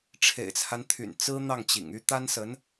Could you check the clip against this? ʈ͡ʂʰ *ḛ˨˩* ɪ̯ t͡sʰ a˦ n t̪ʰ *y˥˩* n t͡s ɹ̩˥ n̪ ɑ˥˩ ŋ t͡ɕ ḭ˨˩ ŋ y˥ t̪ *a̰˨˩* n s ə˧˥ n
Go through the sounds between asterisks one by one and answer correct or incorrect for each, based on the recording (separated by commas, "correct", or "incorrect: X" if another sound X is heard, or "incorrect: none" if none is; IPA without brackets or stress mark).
correct, incorrect: y̰˨˩, incorrect: a˥